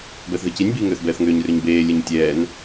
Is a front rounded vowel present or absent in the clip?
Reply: present